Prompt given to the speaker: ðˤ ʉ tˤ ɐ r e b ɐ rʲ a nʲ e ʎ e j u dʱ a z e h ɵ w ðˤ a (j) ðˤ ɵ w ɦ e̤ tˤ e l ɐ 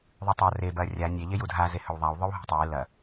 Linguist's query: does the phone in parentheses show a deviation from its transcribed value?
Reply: yes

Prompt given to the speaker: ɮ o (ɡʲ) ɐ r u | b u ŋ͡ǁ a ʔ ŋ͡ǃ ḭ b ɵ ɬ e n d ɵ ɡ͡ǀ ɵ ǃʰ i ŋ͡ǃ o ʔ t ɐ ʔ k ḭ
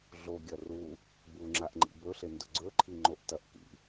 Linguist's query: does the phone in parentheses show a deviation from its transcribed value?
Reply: no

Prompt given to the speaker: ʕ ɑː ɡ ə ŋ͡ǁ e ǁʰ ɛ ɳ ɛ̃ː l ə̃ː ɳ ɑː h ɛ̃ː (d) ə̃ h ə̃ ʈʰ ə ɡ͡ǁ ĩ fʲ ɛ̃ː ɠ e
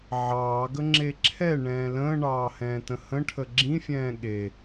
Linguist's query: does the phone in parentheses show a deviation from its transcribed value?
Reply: yes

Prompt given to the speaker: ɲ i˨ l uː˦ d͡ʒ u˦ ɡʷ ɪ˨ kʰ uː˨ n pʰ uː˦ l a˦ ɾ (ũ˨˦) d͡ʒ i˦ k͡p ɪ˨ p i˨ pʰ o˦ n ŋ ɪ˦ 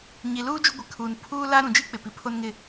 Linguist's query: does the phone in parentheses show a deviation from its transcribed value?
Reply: no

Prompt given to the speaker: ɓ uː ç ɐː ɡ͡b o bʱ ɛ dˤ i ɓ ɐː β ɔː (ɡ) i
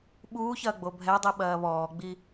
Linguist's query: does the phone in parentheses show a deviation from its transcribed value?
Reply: yes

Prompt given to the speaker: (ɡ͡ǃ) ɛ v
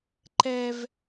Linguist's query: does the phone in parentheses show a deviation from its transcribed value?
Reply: yes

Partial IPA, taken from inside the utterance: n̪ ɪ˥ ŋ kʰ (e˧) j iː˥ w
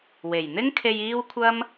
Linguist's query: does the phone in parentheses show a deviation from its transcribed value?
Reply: no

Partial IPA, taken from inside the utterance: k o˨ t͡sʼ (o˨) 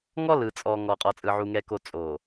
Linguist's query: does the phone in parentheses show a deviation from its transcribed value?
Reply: no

